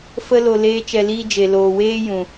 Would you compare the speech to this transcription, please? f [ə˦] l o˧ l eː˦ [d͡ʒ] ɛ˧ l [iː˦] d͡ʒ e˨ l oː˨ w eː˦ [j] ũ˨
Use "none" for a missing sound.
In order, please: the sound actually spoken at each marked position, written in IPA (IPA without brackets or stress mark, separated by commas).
ə˦, t͡ʃ, iː˦, j